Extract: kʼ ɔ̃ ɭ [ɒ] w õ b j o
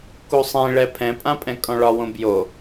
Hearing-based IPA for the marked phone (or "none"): ɒ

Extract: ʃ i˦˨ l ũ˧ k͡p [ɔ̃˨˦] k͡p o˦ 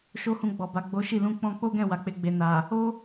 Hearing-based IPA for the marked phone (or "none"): ɔ̃˧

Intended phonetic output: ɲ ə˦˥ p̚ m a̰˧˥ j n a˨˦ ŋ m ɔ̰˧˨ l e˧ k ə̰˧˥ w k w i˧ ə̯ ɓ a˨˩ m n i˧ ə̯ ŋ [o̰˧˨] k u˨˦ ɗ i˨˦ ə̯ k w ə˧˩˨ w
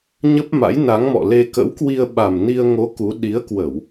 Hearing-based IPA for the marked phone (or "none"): o˨˦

